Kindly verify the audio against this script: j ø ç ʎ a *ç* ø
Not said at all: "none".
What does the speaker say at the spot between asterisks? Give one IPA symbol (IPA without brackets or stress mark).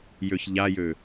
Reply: j